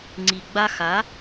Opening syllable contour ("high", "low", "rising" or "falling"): low